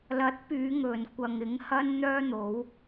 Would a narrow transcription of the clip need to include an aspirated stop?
no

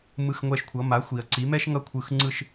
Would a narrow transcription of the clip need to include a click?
yes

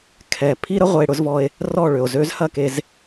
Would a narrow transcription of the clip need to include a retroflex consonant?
yes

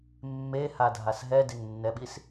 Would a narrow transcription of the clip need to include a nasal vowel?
no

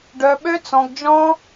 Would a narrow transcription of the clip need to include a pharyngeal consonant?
no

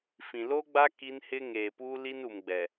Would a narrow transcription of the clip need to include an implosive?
no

